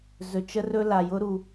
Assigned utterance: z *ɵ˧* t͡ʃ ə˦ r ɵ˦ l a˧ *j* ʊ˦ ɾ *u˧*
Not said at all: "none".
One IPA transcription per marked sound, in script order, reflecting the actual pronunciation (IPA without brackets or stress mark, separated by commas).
ɵ˧, j, u˧